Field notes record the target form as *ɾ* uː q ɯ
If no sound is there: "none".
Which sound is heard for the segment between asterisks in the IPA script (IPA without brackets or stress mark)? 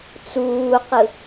t͡s